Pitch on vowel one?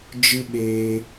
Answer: high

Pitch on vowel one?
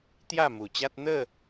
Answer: falling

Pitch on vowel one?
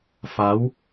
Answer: rising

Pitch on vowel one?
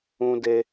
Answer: high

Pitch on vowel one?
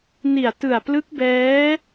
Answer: low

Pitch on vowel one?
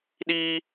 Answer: high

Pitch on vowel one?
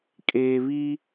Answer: low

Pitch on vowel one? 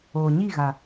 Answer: low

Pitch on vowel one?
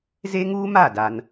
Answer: high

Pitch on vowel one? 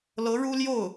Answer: rising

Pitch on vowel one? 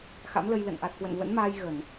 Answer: rising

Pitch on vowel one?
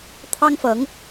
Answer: high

